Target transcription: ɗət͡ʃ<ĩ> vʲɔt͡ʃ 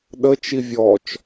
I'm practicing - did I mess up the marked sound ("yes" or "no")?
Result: yes